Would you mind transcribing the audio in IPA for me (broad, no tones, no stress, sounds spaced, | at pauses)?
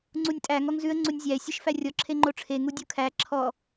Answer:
ŋ͡ǀ u nʲ tʼ æ ŋ ɔ ŋ z ʉ ə̯ ŋ͡ǀ u nʲ zʲ æ ɪ̯ sʲ e ʃ f æ rʲ ɔ ǁʰ e ŋ͡ǃ o ʈ͡ʂʰ e ŋ u dʲ u kʰ æ ǁʰ ɔ